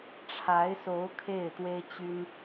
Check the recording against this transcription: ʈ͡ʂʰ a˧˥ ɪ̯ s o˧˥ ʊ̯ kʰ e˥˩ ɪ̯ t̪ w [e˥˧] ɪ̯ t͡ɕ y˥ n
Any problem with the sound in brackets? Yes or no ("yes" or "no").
yes